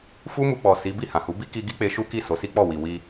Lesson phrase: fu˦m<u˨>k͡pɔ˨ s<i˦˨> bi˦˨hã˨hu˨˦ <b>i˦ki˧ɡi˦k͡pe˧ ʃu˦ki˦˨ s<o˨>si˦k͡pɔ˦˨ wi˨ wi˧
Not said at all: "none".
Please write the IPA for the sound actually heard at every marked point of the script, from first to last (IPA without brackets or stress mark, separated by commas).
u˧, i˨˦, b, o˨˦